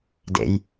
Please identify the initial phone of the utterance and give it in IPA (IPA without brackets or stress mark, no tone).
d